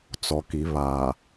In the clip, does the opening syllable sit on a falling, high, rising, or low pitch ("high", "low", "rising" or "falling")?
low